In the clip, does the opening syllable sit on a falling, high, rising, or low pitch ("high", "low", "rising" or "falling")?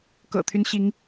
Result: low